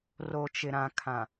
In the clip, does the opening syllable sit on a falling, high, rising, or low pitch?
low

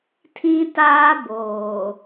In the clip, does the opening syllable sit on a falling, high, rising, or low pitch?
high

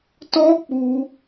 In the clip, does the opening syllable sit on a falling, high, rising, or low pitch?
high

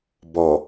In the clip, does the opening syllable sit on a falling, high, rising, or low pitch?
low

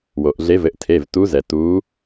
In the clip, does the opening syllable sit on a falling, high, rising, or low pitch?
low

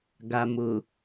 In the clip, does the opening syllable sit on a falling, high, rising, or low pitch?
low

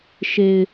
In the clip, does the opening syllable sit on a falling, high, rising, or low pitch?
low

